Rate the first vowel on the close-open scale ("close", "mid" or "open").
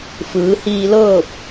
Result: close